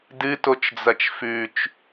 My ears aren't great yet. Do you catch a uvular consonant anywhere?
no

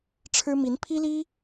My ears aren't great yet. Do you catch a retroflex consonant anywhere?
yes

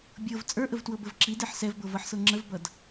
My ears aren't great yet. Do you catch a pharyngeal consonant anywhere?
yes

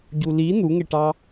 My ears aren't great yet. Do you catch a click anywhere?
no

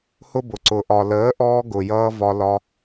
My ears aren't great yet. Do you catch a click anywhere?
yes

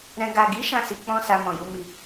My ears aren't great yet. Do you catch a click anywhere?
no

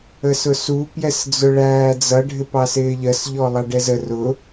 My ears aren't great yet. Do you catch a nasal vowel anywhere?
no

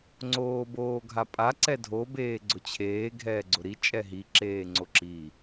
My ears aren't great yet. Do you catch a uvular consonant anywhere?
no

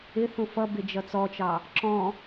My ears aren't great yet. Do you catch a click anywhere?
yes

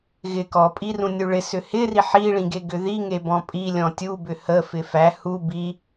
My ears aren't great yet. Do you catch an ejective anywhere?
yes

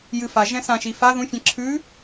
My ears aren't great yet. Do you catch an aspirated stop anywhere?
yes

